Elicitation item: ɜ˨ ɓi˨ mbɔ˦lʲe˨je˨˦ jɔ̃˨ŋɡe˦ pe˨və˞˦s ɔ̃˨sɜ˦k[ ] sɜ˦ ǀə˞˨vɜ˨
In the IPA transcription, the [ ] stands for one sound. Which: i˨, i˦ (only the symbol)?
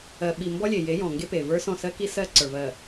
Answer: i˦